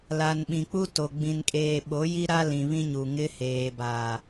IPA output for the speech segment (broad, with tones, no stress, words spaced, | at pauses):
la˨nɓĩ˨k͡pu˦to˨ ɡ͡bĩ˨nkʼeː˨ ɓo˨˦ji˦ɾa˦lĩ˨ βĩ˦ɲu˨ ŋɪ˦ heː˨baː˨